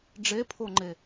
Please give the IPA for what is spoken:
ɖ͡ʐ e pʰ o ŋ͡ǃ e

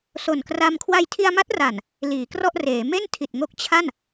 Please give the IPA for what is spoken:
s o˨˩ n k r a˧ m kʰ w a˧ j tʰ i˧ a̯ m a˦˥ t̚ r a˨˩ n | l iː˩˦ k r ɔ˥˩ ʔ r eː˩˦ m e˥˩ n tʰ i˨˩ t̚ ŋ o˦˥ k̚ t͡ɕʰ a˥˩ n

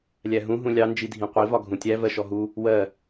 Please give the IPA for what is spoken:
lʲ æ ɦ ũ ɦ ũ lʲ ɑ n d͡ʒ i dʱ ĩ qʷ i v ɒ ɡʱ ũ tʲ æ v ɜ ʃ ɔ ɦ u | w ɜ

